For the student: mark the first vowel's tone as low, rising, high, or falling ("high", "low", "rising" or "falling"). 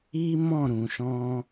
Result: high